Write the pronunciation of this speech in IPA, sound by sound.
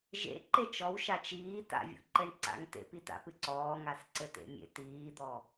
ʒ ḛ ǃ e t͡ʃ ɔ w ʃ a t͡ʃ iː t a̰ vʲ o̰ ǃ ɘ ɳ ǀ a̰ ŋ t ḛ p i t a̰ p ɨ ǀ ɔː ŋ a s ǀ ɘ t ḛ mʲ ḛ t iː d̪ ɔ

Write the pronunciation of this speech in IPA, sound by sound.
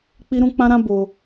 k͡p i˦ ɾ ũ˦ k͡p ã˦ ɾ ã˦ b o˧

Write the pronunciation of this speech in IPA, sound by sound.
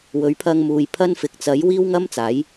w ɵ˨˥ ɥ pʰ ɐ˧ ŋ m uː˨ j pʰ ɐ˥ n f ɪ˨ k̚ t͡s ɐ˨˥ j w iː˥ w ŋ ɐ˥ m t͡s aː˨˥ j

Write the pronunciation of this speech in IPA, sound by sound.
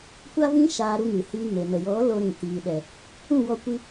kʷ a˦ v ĩ˦ ʃ aː˧ ɾ u˧ ŋ ɨ˨ h iː˧ ŋ e˨ n ə˨ j ɔ˨˦ l o˧ ɾ ĩ˨ t iː˨ ɗ ɛ˨ | ũ˦˨ w ɔ˧ kʷ i˧

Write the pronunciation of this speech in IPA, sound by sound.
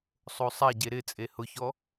sˤ o sˤ a ɟ e ɾ ɪ t͡sʼ e h ʊ ç ɔ

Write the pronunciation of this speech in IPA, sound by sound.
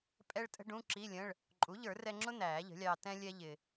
pʼ ɛ˥ ɭ tʼ ə̤˥ ɖ ũ˧˥˧ ǁ i˧˥˧ lʲ ə̃˧˥˧ ɭ | ǃʼ u˩˥ ʎ ə˞˨˩˦ r ɛ˧ ŋ͡ǁ ʊ˥ n̪ æː˨˩˦ ʎ ə̤˩˥ lʲ ɑː˧ t ɛ̃˥ lʲ ɛ˥ ʎ ɪ˧

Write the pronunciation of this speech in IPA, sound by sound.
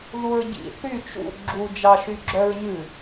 ð u ɹ ɟ ḭ θ y t͡ʃ ṵ ɡ͡ǁ u d͡ʒ ɑ ʃ y ɡ͡ǁ œ ɹ ɲ ʉ

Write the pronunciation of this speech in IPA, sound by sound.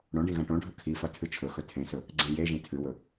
ɽ õ ɖ ĩ ɣ ɐ̃ ʈ õ ɖʱ ɵ kʰ i f ɐ tʰ ɨ t͡ʃʰ ɵ x ɵ tʰ ẽ s ɵ | ɡ͡ǀ ẽ j e ʒ ĩ tʰ ɨ w ɵ

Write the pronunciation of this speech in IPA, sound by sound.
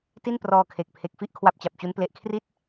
t i˥˩ n p r ɔː˧ kʰ e˨˩ k̚ pʰ e˨˩ k̚ f i˥˩ ʔ kʰ w a˦˥ p̚ t͡ɕ a˨˩ p̚ t͡ɕ u˦˥ n p l e˨˩ ʔ kʰ r i˦˥ t̚

